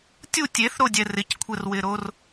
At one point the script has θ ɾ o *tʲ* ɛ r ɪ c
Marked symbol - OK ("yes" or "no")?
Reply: no